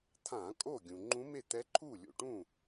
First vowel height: low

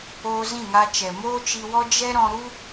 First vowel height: mid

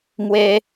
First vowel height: mid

